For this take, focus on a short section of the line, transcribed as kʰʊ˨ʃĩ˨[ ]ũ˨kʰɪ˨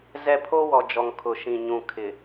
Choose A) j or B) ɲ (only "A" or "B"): B